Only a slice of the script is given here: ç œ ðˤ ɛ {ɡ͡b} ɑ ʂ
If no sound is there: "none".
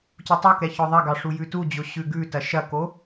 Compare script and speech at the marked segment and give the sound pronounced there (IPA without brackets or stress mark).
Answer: ɡ